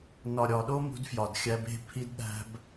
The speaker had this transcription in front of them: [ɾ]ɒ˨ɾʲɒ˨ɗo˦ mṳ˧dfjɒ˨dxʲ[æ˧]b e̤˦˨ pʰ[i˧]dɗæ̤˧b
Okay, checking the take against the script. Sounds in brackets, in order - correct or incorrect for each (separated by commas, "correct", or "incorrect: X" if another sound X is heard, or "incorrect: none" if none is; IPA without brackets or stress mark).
incorrect: n, correct, correct